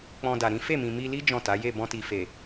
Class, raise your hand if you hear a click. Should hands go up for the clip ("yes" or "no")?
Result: no